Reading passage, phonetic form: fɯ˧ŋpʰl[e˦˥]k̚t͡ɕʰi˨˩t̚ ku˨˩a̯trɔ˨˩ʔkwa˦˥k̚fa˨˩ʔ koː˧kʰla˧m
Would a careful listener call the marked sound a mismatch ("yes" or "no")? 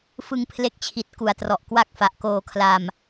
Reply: no